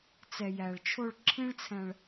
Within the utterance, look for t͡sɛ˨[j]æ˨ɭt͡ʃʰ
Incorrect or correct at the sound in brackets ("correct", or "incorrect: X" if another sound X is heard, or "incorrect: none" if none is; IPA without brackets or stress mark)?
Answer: correct